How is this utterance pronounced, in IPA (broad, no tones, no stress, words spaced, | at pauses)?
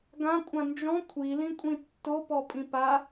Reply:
ɡãkʷʼã nd͡ʒɔ̃ kʷʰilĩkʷʼĩ tːopɔpʼĩ pa